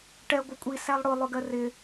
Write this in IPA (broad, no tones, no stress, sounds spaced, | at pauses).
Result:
ʈ ɛ ɡʷ ɪ kʷʼ i s æ lˠ ɽ ʊ lˠ ʊ ɡ ɜ r ɪ